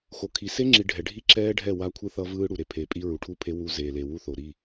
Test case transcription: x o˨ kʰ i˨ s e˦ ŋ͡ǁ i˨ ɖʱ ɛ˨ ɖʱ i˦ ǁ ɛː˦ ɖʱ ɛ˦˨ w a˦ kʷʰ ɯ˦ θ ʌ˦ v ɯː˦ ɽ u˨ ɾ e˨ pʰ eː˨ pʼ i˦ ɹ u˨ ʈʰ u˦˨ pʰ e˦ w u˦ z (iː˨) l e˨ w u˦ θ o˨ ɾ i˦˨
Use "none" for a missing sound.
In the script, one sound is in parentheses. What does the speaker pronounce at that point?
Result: eː˨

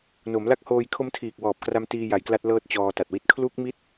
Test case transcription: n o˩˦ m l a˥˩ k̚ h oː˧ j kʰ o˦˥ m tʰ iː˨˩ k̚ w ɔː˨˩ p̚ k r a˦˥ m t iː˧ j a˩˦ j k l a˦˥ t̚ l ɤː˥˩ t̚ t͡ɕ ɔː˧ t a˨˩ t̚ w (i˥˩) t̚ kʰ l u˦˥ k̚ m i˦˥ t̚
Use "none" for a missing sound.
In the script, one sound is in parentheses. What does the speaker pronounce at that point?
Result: i˥˩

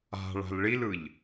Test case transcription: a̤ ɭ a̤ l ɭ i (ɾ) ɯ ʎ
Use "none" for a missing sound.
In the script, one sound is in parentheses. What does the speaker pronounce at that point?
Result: l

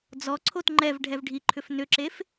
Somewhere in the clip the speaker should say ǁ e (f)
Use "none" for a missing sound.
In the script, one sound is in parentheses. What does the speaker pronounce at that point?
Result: f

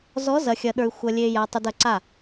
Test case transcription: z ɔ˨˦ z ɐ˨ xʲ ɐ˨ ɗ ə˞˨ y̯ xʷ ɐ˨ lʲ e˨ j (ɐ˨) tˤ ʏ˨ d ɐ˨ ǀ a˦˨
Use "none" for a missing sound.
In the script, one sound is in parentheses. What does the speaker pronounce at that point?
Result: a˨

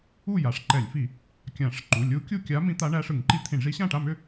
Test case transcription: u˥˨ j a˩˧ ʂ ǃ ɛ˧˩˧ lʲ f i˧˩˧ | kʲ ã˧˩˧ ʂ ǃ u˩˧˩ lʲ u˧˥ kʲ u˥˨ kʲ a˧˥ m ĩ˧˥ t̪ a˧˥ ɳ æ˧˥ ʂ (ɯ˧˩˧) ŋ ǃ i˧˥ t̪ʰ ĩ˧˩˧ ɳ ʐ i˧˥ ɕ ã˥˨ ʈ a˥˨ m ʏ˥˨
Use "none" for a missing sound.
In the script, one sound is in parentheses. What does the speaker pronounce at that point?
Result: ɯ˧˩˧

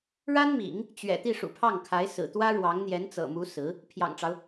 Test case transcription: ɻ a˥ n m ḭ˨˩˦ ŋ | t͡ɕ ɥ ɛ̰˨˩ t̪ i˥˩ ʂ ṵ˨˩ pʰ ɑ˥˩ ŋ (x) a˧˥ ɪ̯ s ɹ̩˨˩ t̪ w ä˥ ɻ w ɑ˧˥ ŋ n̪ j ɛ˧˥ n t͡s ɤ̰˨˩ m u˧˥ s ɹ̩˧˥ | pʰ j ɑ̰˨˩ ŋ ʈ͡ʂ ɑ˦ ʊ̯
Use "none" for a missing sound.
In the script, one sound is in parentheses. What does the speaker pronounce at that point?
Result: kʰ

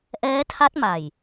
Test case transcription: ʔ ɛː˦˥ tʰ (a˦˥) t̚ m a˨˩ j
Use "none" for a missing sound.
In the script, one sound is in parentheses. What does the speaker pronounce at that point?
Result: a˦˥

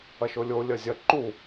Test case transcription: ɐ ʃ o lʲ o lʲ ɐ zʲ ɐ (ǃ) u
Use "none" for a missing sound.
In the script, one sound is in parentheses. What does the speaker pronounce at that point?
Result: ǃ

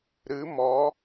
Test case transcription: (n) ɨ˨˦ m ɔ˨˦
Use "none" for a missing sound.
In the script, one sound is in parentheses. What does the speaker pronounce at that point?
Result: ɾ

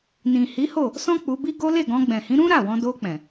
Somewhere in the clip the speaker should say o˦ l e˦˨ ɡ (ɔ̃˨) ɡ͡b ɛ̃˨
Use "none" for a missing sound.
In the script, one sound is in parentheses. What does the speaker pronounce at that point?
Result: ɔ̃˧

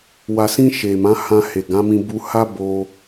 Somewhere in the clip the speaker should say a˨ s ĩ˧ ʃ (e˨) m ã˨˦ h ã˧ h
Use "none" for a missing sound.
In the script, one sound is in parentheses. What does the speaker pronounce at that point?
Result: e˨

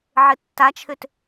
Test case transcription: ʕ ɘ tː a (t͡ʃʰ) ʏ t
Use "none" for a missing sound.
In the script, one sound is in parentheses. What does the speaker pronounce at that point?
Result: t͡ʃʰ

